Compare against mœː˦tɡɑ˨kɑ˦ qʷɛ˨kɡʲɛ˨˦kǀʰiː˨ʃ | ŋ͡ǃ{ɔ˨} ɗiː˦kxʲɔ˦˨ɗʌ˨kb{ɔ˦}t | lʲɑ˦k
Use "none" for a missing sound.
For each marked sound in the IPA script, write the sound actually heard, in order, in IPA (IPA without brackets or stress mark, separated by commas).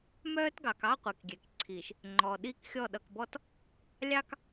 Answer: ɔ˨, ɔ˦